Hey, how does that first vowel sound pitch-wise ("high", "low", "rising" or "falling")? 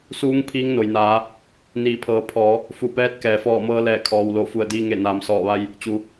rising